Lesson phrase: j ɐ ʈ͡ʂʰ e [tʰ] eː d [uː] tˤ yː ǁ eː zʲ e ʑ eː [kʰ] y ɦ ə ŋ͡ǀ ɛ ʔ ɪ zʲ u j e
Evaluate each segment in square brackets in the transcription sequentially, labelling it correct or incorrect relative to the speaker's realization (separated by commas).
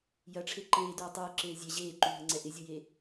incorrect, correct, incorrect